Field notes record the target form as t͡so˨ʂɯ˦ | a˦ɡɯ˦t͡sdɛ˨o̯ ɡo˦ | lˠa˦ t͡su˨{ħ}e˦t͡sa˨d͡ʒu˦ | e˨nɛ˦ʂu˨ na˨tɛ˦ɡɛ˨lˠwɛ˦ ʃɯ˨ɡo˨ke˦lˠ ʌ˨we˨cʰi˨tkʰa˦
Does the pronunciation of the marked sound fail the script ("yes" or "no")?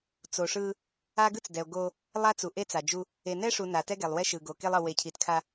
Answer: yes